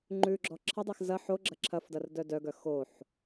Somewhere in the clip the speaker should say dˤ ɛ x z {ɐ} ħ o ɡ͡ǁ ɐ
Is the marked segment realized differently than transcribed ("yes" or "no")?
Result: no